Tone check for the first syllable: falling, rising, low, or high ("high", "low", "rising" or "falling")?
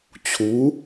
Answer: rising